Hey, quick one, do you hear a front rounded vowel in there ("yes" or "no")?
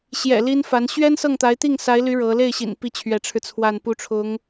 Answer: yes